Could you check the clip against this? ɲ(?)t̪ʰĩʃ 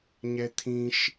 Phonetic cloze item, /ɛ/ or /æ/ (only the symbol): ɛ